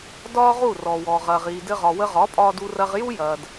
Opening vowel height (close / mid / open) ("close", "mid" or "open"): open